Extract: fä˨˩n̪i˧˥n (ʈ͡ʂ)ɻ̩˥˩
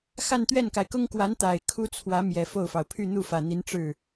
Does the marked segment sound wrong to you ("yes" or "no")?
no